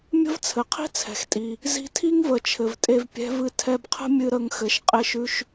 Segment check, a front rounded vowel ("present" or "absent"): absent